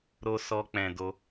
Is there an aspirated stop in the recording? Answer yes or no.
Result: no